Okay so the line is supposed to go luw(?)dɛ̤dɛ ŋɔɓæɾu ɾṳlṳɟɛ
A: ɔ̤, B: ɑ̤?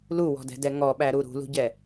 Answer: A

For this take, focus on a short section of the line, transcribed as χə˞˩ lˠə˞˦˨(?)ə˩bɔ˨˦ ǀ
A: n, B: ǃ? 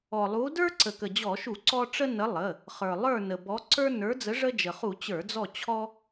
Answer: A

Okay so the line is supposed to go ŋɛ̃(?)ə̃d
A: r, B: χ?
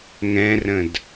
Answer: A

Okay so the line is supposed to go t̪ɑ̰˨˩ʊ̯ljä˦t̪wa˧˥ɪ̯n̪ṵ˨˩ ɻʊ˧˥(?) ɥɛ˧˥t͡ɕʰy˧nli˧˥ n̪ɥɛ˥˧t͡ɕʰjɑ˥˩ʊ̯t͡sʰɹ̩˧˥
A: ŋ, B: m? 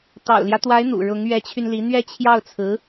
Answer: A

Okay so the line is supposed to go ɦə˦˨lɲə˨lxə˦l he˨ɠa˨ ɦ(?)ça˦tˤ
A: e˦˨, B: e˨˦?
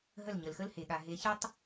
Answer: B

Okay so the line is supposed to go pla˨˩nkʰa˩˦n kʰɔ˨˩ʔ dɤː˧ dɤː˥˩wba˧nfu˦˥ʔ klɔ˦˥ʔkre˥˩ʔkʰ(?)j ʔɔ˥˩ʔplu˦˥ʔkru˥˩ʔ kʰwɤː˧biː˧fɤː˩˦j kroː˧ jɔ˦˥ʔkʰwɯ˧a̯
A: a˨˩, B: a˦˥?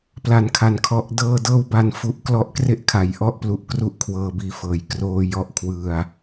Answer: A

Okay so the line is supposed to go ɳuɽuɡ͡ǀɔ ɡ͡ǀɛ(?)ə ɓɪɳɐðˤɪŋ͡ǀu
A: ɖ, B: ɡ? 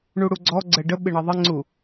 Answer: A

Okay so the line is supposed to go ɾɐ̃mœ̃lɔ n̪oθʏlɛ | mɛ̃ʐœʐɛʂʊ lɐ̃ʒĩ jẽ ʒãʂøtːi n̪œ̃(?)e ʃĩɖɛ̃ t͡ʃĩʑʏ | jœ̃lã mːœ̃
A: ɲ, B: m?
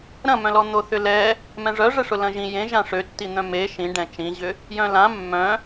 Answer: B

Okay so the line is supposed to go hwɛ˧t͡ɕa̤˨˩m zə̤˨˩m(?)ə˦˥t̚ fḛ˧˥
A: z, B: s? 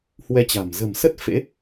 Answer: B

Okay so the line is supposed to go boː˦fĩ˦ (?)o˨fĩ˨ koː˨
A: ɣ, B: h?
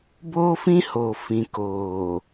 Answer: B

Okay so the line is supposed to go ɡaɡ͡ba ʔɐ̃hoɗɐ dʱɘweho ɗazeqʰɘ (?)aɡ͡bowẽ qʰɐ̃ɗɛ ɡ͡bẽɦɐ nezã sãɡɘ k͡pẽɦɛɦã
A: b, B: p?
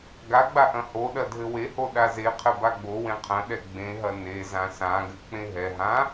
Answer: A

